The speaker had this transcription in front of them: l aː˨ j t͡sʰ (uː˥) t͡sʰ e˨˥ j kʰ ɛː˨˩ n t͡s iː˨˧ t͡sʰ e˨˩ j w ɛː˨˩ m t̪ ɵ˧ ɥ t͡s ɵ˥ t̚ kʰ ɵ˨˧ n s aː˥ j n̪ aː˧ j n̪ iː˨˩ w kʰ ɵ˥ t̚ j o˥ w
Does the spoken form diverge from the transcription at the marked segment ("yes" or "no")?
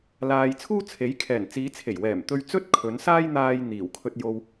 no